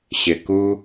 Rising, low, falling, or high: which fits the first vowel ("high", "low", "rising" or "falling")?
low